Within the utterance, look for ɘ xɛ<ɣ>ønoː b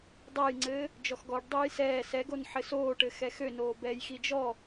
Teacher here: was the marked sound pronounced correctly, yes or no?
no